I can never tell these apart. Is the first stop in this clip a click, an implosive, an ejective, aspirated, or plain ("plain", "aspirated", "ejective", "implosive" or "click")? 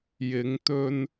plain